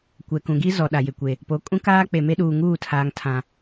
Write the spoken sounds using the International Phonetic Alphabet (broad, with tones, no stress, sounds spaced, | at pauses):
kʷ ɛ˨ k ũ˨ ɡ i˦ z ɔ˨ ɗ a˨ j ɪ˨ kʷ e˨ | p o˨˦ kʼ ũ˦ k aː˦ k͡p e˨ m e˦ ɗ uː˨ ŋ uː˦˨ tʰ aː˨ ŋ tʰ ã˨